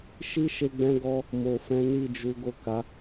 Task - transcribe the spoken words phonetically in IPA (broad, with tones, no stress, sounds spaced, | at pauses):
ʃ i˦ ʃ e˧ ɡ͡b ɛ̃˧ ɡ ɔ˧ | m o˨ f ɛ̃˨˦ n i˦˨ d͡ʒ u˨˦ ɡ o˦˨ k a˨˦